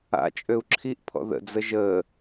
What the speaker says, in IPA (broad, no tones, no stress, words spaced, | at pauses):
a̰t͡ʃʼøu̯ ǁʰiʔpʰɔ̰ ðə̰d͡zə ʒəː